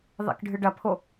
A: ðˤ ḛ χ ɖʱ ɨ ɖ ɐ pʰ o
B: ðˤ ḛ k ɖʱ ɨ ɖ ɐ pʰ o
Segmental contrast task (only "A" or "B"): B